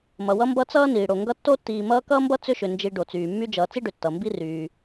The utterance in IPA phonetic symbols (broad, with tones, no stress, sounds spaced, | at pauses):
m ʌ˩ w ʌ˦ m b ʌ˦ t͡s ʌː˥ n iː˩ ɽ o˩ ŋ ɡ ʌ˦ tː o˥ tː iː˨ m ʌː˦ k ʌː˥ m b ʌ˥ t͡s ʏ˥ ʃ ʏ˨ n d͡ʒ i˨ ɖ o˩ t͡s yː˩ mː y˦ d͡ʒ ʌː˨ t͡s i˥ ɖ ʏ˨ tː ʌ˩ m b i˦ r yː˩